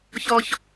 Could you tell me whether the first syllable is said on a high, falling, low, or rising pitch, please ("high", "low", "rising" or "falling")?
low